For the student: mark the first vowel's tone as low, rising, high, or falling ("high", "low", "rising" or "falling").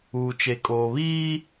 low